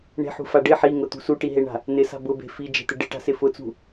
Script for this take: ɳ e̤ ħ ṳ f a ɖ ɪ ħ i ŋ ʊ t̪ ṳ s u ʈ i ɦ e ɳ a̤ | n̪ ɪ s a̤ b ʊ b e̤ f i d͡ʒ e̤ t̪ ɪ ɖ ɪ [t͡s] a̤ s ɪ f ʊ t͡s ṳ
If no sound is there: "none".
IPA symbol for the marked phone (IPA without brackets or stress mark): ʈ